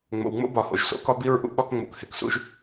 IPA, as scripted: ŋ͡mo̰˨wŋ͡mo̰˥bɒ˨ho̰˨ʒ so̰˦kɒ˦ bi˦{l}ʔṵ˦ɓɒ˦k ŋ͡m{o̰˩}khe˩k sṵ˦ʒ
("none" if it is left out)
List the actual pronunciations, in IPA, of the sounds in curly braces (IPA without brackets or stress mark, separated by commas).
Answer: ɹ, o̰˨